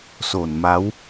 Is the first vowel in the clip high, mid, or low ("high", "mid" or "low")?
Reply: mid